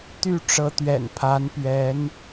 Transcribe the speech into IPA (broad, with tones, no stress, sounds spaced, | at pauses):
t̪ y˥˩ ʈ͡ʂ ɤ˧˥ t̪ ɥ ɛ̰˨˩ n pʰ a˧˥ n p ɥ ɛ˧˥ n